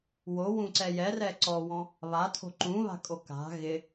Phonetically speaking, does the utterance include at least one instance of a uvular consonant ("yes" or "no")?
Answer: no